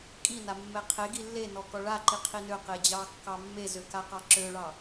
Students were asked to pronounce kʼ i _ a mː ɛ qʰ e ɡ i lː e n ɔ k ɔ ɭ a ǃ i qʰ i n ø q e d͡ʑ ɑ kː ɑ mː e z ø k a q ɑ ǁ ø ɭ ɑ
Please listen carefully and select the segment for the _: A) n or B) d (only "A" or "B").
A